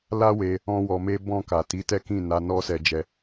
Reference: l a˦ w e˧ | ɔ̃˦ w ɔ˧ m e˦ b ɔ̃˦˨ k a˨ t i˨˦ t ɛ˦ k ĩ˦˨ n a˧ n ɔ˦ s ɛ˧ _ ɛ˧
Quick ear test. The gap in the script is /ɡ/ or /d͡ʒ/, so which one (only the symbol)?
d͡ʒ